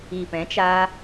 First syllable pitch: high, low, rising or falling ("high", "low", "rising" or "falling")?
low